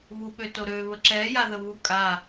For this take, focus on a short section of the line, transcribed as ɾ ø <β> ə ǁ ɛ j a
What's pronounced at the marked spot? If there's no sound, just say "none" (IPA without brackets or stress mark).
β